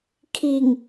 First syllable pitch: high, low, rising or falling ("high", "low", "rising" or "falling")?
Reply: low